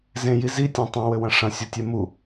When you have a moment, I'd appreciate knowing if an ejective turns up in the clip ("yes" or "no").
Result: no